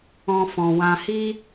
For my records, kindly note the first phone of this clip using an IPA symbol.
ɔ̃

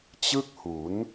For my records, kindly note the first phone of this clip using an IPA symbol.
t͡ɕ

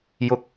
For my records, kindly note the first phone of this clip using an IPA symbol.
j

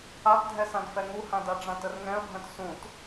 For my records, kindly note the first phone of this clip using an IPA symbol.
a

